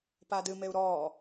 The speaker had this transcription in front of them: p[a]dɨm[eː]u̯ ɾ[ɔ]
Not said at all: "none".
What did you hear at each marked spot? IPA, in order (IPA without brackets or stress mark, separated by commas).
a, e, ɔː